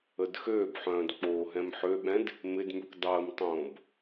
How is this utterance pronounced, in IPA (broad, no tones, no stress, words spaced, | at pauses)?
ədxøːbħœ̃ːd k͡poːɦɛ̃mħøɓɛ̃d | mɪdmykʷ dˤəːmtˤõːb